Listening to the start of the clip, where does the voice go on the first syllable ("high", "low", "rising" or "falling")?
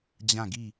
falling